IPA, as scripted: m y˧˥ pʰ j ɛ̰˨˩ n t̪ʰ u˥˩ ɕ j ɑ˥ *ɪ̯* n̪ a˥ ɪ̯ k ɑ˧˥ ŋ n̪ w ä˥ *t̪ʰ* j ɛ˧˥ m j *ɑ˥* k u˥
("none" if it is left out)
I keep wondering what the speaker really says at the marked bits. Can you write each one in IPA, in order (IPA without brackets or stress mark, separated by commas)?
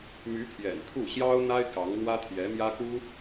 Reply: ʊ̯, t̪ʰ, ä˥